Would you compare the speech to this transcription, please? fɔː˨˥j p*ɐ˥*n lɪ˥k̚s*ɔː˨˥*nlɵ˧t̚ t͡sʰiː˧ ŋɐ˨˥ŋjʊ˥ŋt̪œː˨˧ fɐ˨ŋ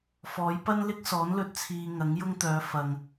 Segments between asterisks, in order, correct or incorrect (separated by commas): correct, correct